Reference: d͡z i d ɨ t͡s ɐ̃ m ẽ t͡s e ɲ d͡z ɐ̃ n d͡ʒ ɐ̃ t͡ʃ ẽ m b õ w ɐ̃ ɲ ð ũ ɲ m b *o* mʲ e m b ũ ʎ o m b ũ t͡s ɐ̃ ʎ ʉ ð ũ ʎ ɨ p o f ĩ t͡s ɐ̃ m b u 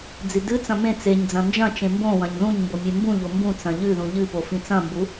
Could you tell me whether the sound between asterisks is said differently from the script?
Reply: no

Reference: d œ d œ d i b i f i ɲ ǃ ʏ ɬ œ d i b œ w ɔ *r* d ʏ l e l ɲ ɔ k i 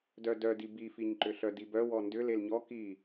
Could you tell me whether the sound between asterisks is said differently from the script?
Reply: yes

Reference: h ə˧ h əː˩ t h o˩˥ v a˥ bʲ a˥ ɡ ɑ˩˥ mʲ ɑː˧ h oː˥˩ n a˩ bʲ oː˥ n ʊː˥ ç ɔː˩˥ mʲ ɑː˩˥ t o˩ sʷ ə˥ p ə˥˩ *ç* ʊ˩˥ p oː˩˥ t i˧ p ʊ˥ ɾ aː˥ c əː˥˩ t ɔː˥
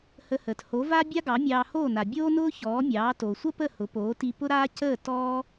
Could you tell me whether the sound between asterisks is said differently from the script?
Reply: yes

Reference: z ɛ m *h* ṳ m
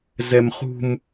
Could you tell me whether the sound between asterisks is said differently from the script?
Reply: yes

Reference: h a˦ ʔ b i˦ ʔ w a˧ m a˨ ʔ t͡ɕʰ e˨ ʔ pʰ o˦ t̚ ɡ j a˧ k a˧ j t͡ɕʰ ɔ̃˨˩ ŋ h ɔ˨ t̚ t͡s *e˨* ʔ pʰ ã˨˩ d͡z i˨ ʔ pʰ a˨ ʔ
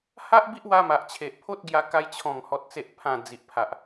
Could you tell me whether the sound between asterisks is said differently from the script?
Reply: no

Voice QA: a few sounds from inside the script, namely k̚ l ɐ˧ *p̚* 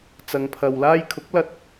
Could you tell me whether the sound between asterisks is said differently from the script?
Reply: yes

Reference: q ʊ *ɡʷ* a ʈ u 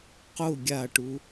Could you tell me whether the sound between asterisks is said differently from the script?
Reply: yes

